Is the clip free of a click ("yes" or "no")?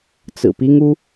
yes